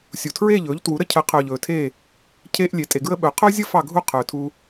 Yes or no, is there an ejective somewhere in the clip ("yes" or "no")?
yes